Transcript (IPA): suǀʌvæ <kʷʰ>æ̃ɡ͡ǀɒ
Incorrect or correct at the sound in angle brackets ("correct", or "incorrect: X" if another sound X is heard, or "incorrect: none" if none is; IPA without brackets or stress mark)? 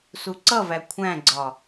correct